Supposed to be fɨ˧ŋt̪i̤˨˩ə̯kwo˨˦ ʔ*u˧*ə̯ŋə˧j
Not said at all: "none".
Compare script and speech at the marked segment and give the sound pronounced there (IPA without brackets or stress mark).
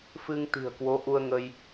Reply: u˧